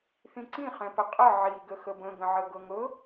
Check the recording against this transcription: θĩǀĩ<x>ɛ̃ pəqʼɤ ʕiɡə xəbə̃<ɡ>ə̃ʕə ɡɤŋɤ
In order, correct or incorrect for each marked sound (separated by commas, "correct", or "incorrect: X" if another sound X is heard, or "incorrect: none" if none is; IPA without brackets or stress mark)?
incorrect: χ, correct